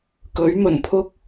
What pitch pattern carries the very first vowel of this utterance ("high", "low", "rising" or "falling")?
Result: rising